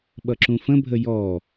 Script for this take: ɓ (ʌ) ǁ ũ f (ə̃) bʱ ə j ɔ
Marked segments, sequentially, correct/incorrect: correct, correct

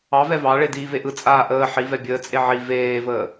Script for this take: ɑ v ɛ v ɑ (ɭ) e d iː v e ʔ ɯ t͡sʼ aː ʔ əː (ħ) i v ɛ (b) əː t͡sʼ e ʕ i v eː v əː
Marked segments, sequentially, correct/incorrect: correct, correct, incorrect: bʲ

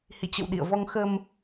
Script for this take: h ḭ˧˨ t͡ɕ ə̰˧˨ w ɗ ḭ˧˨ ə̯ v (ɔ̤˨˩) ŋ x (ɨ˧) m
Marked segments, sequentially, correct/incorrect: incorrect: ɔ˧, incorrect: ə˧

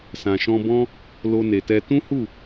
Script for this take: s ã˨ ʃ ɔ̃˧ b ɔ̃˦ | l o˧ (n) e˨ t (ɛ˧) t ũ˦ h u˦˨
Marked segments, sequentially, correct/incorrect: correct, correct

